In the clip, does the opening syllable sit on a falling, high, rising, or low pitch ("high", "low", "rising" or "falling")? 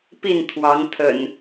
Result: falling